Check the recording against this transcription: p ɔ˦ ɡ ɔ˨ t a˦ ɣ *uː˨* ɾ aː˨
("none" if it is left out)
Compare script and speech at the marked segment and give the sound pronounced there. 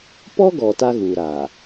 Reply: uː˨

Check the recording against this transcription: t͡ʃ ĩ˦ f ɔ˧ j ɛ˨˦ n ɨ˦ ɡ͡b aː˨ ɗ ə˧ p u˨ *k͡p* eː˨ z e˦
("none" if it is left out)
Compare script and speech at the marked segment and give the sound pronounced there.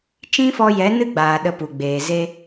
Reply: ɡ͡b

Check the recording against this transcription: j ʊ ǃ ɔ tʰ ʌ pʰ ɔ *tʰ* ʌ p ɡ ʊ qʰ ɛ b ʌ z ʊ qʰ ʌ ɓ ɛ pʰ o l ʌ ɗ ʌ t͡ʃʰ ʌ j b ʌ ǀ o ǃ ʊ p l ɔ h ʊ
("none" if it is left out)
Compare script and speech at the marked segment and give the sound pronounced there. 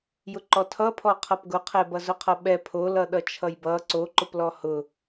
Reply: qʰ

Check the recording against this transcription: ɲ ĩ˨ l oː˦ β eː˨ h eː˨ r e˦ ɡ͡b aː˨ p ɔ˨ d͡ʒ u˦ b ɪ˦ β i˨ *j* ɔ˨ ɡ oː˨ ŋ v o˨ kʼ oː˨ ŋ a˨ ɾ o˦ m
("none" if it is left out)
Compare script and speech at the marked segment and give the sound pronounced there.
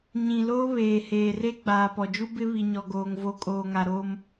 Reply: ɲ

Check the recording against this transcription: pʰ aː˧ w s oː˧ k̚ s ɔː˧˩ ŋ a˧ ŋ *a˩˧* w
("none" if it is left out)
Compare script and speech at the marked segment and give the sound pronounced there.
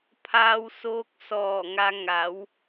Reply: a˩˧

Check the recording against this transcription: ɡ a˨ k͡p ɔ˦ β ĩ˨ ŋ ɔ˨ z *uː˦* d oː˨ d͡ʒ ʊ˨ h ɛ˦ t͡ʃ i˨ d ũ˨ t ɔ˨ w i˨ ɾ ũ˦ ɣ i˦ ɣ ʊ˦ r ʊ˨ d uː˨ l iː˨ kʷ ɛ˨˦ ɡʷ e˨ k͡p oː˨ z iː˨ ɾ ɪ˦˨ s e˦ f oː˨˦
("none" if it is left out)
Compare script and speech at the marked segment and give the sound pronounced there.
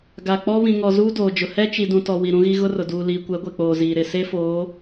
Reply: uː˦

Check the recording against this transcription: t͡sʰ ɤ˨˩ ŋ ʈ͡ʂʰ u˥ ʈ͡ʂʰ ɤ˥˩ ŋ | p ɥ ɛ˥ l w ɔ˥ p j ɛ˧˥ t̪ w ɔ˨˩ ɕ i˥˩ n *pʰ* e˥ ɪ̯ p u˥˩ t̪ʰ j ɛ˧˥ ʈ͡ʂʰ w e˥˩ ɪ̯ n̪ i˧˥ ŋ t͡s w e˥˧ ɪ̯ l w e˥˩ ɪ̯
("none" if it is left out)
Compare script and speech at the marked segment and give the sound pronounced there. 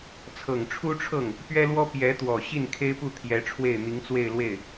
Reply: kʰ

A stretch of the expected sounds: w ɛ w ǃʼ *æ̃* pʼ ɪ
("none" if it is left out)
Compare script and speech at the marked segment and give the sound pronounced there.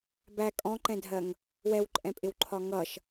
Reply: ɛ̃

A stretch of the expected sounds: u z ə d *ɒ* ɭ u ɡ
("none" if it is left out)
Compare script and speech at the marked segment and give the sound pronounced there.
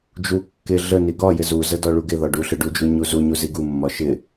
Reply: ɒ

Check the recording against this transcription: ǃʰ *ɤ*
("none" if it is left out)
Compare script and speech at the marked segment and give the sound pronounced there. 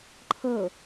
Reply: ɤ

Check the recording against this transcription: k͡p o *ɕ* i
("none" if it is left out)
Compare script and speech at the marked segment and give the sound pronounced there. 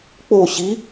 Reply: ɕ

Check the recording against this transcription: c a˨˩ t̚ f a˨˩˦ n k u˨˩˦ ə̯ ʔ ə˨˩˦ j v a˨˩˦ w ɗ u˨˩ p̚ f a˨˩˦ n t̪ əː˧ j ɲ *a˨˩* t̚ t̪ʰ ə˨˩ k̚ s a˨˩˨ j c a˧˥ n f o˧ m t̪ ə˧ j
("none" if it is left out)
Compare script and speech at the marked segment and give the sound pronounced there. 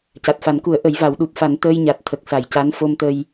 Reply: a˨˩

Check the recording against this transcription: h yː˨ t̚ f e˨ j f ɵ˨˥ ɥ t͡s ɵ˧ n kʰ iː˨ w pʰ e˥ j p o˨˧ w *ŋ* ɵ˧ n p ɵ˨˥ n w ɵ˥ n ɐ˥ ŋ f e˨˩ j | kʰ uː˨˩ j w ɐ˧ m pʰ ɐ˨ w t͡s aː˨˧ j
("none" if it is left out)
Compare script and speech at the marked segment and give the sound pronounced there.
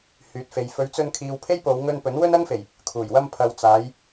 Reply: ŋ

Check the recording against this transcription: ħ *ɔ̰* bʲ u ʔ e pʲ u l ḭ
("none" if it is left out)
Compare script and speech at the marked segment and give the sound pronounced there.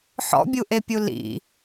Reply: ɔ̰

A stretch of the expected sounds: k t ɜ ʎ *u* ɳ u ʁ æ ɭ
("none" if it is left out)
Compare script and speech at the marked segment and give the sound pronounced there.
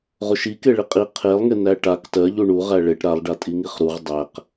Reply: u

